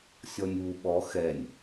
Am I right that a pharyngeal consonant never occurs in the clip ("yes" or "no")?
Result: yes